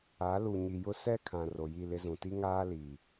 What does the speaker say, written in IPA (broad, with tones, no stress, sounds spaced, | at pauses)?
a˨˦ l u˨ ɲ i˨ j ʊ˦ s ɛ˦ kʰ ã˨ r o˨ j i˦˨ l ɪ˦ z ũ˨ t i˦ ŋ aː˦ l i˨